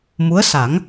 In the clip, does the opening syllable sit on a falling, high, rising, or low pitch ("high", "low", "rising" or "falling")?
rising